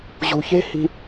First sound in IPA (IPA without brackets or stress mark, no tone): ʑ